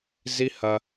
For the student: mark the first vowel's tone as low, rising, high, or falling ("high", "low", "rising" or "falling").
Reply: high